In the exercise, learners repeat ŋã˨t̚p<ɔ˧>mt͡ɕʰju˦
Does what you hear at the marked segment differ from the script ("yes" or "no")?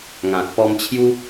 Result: no